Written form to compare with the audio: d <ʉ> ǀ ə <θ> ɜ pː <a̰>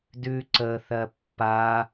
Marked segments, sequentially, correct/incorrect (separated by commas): correct, correct, incorrect